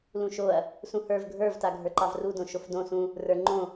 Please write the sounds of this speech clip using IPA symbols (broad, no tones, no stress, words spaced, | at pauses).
lũʃoɐ̯ | sũhə˞v ɡʱə˞vta ɡʱə˞ǃɑvrudõ ʃofdõ sũ | rə˞ ŋ͡ǃõ